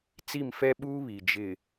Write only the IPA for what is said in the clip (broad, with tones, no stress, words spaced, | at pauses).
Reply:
t͡si˦˨mfɛ˦ɓuː˦ βi˨ d͡ʒɪ˨